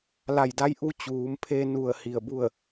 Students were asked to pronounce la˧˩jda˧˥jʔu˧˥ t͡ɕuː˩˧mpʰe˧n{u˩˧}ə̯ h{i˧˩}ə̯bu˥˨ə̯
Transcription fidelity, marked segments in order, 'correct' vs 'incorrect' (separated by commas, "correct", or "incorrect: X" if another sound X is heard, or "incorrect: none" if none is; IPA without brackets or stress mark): incorrect: u˧˩, correct